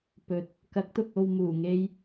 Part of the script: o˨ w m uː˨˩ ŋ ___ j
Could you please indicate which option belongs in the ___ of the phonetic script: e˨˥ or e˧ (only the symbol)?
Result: e˧